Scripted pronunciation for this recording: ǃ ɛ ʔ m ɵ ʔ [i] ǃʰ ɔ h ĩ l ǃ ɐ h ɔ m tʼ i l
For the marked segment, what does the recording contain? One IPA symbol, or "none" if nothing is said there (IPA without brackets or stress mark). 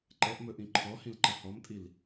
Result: ĩ